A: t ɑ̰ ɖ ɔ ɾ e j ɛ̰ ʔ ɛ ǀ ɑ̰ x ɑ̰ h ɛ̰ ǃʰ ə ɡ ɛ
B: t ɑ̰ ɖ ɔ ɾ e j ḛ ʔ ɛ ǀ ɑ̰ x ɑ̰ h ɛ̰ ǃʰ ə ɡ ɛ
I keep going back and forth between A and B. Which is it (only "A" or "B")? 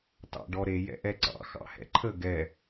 A